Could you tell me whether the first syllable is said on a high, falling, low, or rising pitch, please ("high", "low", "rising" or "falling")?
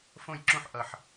falling